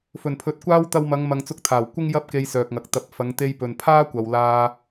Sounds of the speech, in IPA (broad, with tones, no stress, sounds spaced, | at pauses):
f ɵ˨˩ n pʰ ɵ˨ t̚ kʷ aː˥ w t̪ ɐ˧ w m ɐ˨˧ ŋ m ɐ˨ ŋ t͡s ʊ˧ k̚ t̪ʰ aː˨˩ w kʷ ɪ˥ ŋ j ɐ˥ p̚ k e˧ j s œː˨ k̚ ŋ ɐ˨ k̚ t̪ ɐ˨ p̚ f ɐ˨˧ ŋ t̪ e˧ j p ɵ˨ n pʰ aː˥ kʷ ɐ˨ w l aː˧